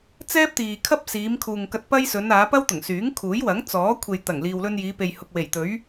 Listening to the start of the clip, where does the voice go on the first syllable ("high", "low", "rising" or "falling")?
high